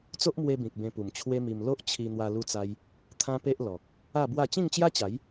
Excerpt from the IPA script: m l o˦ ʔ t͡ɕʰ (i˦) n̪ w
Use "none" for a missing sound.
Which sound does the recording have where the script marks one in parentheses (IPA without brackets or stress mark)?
i˧